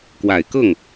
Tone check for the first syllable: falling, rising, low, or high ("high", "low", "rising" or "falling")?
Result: low